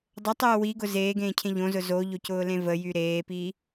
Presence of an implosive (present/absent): absent